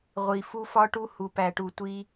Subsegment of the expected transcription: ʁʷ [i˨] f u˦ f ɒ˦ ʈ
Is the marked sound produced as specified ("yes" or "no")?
yes